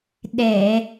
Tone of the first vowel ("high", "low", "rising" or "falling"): low